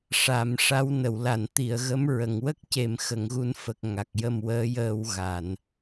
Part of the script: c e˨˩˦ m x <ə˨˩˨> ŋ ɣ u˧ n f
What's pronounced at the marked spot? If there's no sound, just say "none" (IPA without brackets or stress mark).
ə˨˩˨